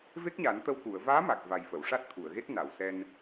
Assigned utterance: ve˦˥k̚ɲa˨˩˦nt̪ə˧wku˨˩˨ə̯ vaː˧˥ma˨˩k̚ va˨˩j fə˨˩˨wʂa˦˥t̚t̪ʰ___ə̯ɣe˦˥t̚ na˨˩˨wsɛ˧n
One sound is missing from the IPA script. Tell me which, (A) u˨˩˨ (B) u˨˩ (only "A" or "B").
A